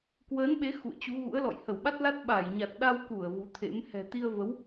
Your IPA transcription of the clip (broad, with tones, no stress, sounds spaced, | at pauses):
k w əː˨˦ n ɓ e˨˦ x ṵ˧˨ ə̯ t͡ɕ u˨˦ ɣ ṵ˧˥ ə̯ l ɔ̰˧˨ j h ə˧˩ w ɓ a˦˥ t̚ l a˦˥ t̚ ɓ a˧˩ j ɲ a˨˩ t̚ ɗ a˧ w k u˧˩ ə̯ v u˨˦ t̪ʰ ḛ˧˥ m h ɛ̤˨˩ t̪ i˧ ə̯ v ə˨˦ w